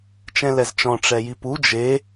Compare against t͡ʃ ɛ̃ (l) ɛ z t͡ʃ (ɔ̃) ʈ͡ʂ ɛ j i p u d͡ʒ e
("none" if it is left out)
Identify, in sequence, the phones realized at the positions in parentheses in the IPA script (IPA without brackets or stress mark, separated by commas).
l, ɔ̃